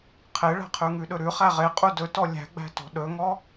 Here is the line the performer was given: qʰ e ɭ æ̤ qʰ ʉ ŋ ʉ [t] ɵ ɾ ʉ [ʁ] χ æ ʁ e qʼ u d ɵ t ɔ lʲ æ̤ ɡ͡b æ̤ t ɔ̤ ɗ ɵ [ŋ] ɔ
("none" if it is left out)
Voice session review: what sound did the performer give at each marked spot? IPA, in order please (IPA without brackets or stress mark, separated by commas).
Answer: ɗ, none, ŋ